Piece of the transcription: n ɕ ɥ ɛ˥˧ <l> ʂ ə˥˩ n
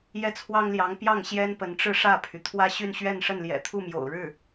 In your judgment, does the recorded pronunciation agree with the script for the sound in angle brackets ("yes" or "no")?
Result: no